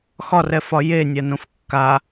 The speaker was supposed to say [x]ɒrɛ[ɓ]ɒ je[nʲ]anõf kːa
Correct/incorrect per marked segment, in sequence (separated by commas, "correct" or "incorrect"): correct, incorrect, correct